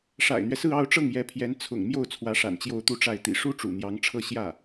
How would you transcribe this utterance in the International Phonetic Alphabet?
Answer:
ʂ a̰˨˩ ɪ̯ n̪ ɥ ɛ˦ s ɹ̩˥˧ ɑ˥˧ ʊ̯ ʈ͡ʂ ɤ˥˩ ŋ j ɛ˧˥ pʰ j ɛ˧˥ n t͡sʰ ʊ̰˨˩ ŋ m j o˥˩ ʊ̯ t͡sʰ w ä˧˥ ʂ a̰˨˩ n t͡ɕ j o˥˧ ʊ̯ t̪ u˥˧ ʈ͡ʂ a˥˩ ɪ̯ t̪ ḭ˨˩ ʂ u˥ ʈ͡ʂ ṵ˨˩ n̪ j ɑ˧˥ ŋ ʈ͡ʂʰ ɤ˥ ɕ j ä˥˩

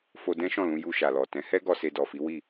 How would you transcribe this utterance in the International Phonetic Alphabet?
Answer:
f o˧ d ɛ̃˦ ʃ ɔ̃˦˨ l ũ˧ j u˧ ʃ a˨ l ɔ˨ t ɛ̃˨˦ h ɛ˦ ɡ ɔ˧ s e˧ d ɔ˨ f i˨˦ w i˦˨

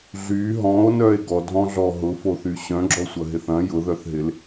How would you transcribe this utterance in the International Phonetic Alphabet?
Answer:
ɮ y ɦ ɔ̃ o̯ n œ e̯ ɡ ɔ dʱ ɔ̃ ɮ ɔ ɦ ʊ f o θ y ɕ œ̃ ɡ͡ǁ ɔ sʷ ɐ ɦ ɪ θ ɐ̃ j ʊ ð œ θ ɦ ɪ l

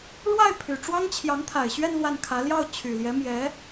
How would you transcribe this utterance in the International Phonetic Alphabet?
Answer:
ɻ w a˥˩ ɪ̯ pʰ y˨˩ ʈ͡ʂ w ɑ˥ ŋ t͡ɕʰ j ɑ˧˥ ŋ t̪ʰ a˨˩ ɪ̯ ɕ ɥ ɛ˥˧ n l w a˥˩ n kʰ ä˧˥ l j ɑ˥˩ ʊ̯ t͡ɕʰ y˨˩ l j ɛ˧˥ m j ɛ˧˥

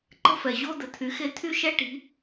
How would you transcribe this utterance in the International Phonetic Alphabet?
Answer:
ǃ ə̤˧ f ɛ˩ ʑ o˧ d̪ ə˩ t̪ʰ y˩˧ x e˧ t̪ʰ y˥ ʃ ɛ˥ ʈ i̤˧˥

